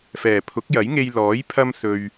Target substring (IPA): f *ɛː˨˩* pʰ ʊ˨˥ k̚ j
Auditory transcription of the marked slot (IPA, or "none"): ɛː˨˩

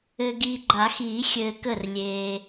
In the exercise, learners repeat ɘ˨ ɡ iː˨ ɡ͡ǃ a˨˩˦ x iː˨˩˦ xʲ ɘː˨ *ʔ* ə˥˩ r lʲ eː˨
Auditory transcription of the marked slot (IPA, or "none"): k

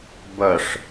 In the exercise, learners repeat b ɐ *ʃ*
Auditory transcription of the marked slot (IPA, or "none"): ʂ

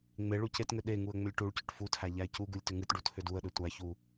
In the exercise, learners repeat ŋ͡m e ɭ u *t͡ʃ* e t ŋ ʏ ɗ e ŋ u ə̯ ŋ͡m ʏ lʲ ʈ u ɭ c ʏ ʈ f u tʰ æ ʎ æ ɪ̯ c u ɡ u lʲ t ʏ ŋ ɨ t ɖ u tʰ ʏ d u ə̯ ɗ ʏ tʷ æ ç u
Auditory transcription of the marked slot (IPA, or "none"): c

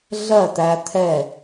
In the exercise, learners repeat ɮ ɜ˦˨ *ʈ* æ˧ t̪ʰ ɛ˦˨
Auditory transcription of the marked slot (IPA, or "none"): t̪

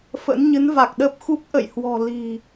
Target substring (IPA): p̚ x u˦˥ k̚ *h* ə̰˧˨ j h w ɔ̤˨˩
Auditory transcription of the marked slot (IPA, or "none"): ʔ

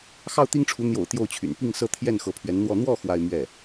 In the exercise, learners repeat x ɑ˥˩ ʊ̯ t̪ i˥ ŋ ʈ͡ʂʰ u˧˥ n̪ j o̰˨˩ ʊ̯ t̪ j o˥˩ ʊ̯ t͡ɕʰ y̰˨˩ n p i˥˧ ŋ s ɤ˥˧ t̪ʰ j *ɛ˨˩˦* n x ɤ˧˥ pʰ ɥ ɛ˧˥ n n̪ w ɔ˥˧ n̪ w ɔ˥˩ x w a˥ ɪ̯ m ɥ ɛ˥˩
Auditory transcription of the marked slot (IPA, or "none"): ɛ˥˩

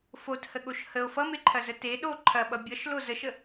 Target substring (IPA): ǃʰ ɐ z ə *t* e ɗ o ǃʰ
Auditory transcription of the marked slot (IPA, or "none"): t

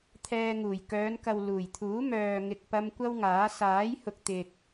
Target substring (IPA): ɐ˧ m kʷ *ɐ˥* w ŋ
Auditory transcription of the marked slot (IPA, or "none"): ɐ˥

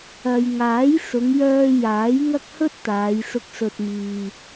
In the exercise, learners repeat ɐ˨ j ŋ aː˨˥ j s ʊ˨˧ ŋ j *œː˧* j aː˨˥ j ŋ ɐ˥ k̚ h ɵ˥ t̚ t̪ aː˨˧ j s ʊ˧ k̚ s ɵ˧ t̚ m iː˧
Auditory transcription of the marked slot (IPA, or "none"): œː˧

